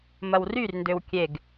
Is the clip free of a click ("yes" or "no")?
yes